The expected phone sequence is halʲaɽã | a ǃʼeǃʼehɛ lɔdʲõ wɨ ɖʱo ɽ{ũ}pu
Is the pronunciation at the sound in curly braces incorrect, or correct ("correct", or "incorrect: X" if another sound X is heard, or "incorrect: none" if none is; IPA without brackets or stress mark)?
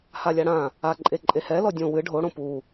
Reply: incorrect: õ